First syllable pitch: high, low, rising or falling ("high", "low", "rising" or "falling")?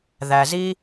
low